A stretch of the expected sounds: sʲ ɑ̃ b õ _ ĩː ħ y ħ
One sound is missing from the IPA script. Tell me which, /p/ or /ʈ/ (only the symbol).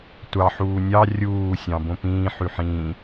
p